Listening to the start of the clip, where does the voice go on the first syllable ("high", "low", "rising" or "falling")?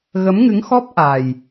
rising